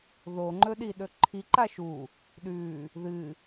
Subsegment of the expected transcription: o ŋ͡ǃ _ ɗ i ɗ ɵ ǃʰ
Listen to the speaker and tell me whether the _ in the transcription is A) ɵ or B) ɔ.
A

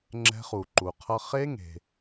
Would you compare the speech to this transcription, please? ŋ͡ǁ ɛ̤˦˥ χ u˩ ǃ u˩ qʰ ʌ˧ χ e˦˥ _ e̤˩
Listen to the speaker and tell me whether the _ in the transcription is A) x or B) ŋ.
B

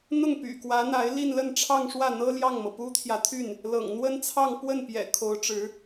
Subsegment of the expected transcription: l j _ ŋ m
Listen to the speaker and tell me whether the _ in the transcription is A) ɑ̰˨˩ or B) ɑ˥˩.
B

